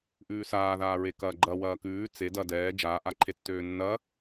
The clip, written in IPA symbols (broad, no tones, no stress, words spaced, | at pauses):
ʔʉːsaːðaːɹe kɐːɡ͡ǃɐ wɐːkʉː t͡se dɐ dɛː d͡ʒaːʔaǃʰe tːøːnːɐ